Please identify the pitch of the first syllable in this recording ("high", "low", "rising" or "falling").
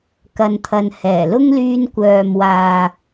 low